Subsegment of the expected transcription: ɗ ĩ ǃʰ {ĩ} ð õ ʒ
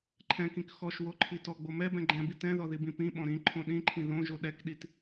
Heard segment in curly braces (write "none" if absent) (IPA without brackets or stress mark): ĩ